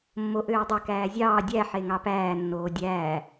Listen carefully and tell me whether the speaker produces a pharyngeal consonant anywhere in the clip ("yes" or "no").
yes